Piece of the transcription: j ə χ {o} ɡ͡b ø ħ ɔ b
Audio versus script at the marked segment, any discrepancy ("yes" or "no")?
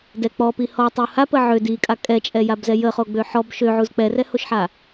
no